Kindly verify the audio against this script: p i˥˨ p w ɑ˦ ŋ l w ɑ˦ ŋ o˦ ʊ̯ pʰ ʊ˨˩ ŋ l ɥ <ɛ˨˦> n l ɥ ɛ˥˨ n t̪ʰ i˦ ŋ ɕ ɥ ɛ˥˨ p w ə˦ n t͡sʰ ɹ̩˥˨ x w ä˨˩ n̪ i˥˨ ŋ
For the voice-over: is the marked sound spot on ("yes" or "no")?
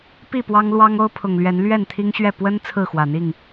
yes